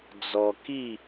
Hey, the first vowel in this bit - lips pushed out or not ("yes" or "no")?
yes